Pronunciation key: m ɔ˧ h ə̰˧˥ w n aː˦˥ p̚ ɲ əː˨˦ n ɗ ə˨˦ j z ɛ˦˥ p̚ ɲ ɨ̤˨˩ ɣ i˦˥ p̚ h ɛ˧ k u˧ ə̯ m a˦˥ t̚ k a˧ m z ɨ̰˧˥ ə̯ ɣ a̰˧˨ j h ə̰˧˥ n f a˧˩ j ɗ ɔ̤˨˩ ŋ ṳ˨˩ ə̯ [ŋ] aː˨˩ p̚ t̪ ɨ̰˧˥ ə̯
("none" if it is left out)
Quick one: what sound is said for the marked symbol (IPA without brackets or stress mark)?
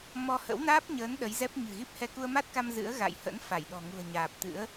ɲ